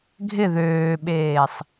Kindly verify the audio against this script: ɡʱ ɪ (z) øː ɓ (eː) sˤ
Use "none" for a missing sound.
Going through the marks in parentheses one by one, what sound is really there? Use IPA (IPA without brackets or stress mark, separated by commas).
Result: ð, eː